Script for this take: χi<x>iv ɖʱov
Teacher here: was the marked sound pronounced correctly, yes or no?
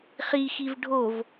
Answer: yes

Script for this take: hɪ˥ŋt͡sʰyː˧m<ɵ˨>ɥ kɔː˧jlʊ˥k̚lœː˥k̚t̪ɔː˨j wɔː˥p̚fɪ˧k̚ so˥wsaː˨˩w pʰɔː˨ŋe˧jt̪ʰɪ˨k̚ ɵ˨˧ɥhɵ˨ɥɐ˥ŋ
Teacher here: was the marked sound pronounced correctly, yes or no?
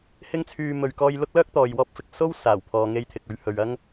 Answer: no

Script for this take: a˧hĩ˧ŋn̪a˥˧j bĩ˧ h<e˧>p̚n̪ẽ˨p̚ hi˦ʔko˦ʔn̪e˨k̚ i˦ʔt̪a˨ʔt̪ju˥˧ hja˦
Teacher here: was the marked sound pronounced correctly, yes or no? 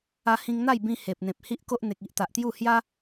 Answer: no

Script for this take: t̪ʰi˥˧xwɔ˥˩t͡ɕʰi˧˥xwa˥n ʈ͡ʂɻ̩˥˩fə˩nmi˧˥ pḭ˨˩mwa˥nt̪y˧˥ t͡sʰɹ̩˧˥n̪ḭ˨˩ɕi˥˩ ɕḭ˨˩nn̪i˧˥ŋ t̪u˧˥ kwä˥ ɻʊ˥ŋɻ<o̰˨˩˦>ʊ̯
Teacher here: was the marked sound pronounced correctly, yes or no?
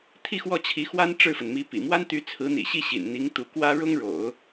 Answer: yes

